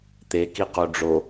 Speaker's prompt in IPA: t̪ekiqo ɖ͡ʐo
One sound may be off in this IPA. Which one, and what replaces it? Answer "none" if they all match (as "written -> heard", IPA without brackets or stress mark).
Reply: none